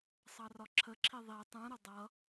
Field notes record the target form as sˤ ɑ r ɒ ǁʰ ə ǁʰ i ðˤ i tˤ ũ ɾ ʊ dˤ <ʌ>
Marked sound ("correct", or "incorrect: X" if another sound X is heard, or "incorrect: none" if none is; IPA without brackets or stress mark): correct